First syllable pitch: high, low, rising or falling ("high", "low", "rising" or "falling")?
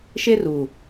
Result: high